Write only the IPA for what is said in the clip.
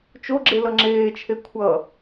t͡ʃ o ɡ͡ǁ e l ʌ ŋ͡ǁ eː t͡ʃʰ e kʷʰ ʌ

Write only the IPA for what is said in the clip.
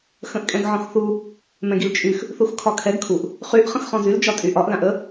x ə̃ ʔ kʼ ɛ̃ ɡ ʕ ɔ̃ x θ u | m ɛ̃ ɡ i l t͡ʃʼ y x | θ u x kʰ ɒ kʰ ɛ ɡ kʰ u ʔ | χ y ʔ χ ə̃ x χ ɔ̃ z y l d͡ʒ ɒ tʼ y ʔ ɒ ʔ l ã ʔ ə

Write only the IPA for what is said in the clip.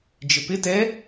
d͡ʒ ɪ p ɪ t ɛ

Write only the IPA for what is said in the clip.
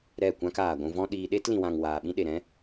ɾ ɛ˦˨ kʷ ã˦ k aː˨ ɡʷ ũ˧ v ɔ̃˦ ɗ iː˧ ɗ e˦ t l ĩ˨ w ã˨ ŋ w aː˨ ɓ ĩ˦ ɗ e˨ ɾ ɛ̃˦

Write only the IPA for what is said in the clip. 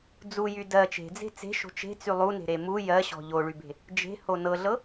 d͡z u j y d ɜ t͡ʃ e̤ d͡z e̤ t͡s e̤ ʃ o̤ t͡ʃ e̤ t͡s y lˠ u n e̤ ɾ e m u j ɜ ɕ ɔ̤ ʎ o ɭ y b e̤ | d͡ʒ e̤ h o n ɤ ɮ ɤ

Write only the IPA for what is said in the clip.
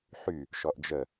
ħ y | ʃ ɔ ʔ d͡ʒ ə

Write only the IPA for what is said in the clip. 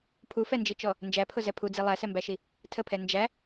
pʰ u f ɛ n d͡ʒ i t͡ʃ ɔ | n d͡ʒ æ pʰ ʊ z ɛ pʰ u d͡z i lˠ æ s ɛ m b æ ʃ i | tʰ ə pʰ ɛ n d͡ʒ æ

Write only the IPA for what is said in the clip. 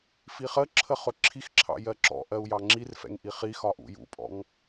f i χ ə ǁʰ ə χ ʊ ǁʰ i x ǁʰ ɑ̰ j ɜ ǁ ɔ̰ ʔ ɜ u̯ j ɑ ŋ͡ǁ i r f ɛ̰ ŋ ʔ i χ i x ɒ ʔ ṵ j ṵ pʼ ɔ̰ ŋ

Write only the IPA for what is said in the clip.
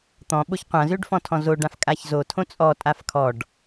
t̪ ɔ̃ ɓ o ç qʷ ã z ø ɖ f ɔ̃ tʰ ɔ̃ z o ɖ ã f kʼ a ç z o tʰ õ t͡sʼ ɔ tʼ a f kʰ ɔ ɖ

